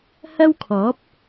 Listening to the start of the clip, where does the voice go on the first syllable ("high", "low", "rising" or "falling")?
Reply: high